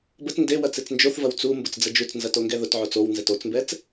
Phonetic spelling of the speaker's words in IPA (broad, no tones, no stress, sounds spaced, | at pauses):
b ə t n d e w ɐ t͡s e t͡s n d͡ʒ o θ v ɐ w t͡s u m b ʊ t͡s d͡z ə d͡ʒ u t͡s n z ɐ t o ŋ ɡ ɛ ð ʊ t ʕ o t͡s o w n z ɛ t o t͡s m b ɛ t͡s